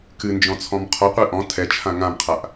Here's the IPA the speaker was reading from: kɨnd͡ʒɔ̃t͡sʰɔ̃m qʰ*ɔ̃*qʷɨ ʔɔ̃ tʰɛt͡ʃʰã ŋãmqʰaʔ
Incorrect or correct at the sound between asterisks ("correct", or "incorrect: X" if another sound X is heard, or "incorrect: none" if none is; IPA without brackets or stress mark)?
incorrect: ɔ